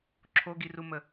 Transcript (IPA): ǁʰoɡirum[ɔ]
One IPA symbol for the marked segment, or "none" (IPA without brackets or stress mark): ə